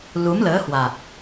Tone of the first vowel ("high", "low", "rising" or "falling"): rising